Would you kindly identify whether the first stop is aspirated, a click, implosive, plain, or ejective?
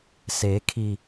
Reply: aspirated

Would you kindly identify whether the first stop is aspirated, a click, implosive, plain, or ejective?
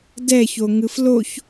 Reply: plain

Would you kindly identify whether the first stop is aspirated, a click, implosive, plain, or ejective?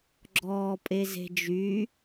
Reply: click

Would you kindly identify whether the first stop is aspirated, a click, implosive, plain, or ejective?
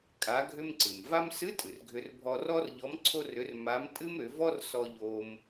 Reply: ejective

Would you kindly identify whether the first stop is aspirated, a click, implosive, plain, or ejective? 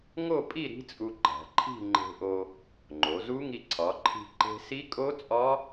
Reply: ejective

